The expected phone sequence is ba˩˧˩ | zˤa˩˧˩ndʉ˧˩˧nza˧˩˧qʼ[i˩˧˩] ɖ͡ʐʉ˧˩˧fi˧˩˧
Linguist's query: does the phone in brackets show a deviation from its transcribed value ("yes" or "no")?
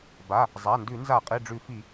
no